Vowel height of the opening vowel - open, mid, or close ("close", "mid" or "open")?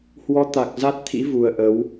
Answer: mid